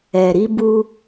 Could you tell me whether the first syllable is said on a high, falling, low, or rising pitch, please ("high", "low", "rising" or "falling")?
low